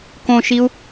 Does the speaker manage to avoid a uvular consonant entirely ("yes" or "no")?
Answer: yes